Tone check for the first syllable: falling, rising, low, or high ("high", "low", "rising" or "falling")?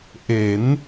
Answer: rising